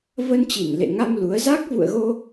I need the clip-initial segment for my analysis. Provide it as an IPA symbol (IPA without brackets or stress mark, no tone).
v